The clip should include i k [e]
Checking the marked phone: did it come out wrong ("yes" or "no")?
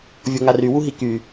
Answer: yes